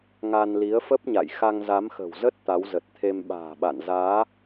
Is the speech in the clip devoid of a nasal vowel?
yes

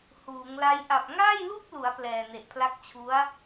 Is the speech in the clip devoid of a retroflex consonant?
yes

